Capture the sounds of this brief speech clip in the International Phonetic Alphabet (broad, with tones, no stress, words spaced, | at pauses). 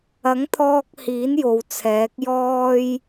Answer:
ɐ˨˥ŋt̪ʰɔː˧k̚ hiː˨˥njo˨w t͡sʰɛː˨˥k̚ jɔː˥j